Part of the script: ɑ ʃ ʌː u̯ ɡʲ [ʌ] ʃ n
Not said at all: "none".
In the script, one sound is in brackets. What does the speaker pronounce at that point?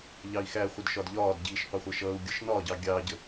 ʌ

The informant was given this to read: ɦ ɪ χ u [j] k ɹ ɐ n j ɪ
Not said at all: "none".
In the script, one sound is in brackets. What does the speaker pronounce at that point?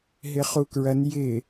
none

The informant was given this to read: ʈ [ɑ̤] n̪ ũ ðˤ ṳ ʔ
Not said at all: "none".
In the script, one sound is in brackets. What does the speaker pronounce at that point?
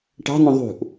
ɑ̤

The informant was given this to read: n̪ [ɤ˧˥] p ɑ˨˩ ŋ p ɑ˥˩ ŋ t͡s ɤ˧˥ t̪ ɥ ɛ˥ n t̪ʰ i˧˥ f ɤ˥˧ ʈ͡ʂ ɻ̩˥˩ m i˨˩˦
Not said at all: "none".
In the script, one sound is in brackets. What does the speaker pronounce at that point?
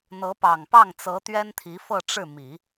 ɤ˧˥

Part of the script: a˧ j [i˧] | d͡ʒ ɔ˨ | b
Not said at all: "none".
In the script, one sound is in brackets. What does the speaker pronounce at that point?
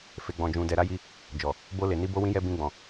i˧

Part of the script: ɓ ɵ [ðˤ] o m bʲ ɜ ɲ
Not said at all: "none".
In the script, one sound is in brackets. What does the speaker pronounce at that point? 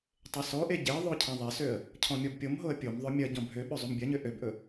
zˤ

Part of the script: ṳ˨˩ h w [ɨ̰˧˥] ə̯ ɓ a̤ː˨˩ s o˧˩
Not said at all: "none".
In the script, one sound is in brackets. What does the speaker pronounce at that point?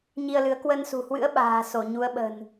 ɨ̰˧˥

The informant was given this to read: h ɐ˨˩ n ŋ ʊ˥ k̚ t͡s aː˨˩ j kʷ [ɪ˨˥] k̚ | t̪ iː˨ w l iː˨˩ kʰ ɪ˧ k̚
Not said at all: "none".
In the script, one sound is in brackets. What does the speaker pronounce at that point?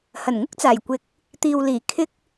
ɪ˨˥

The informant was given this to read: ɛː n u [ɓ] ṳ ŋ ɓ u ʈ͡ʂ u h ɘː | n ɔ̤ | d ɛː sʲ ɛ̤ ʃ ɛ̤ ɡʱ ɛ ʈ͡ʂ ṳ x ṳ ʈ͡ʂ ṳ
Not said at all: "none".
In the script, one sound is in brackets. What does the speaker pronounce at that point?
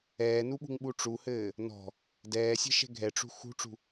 ɓ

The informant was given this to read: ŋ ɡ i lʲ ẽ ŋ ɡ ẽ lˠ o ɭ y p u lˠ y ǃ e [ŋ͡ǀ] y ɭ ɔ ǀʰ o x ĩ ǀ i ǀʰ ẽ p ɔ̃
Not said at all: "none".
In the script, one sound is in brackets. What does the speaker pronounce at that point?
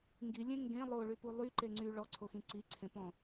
ŋ͡ǀ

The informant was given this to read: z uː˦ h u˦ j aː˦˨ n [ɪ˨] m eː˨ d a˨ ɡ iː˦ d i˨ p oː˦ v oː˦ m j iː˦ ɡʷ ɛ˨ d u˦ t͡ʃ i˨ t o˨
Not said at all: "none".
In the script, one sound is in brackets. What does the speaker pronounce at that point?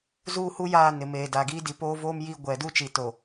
ɪ˨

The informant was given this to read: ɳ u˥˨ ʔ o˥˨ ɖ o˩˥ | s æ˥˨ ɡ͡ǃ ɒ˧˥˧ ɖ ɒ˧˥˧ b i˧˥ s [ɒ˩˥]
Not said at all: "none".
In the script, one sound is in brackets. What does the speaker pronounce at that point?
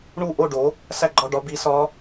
ɒ˧˥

